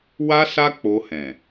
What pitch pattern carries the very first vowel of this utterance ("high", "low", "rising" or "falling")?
high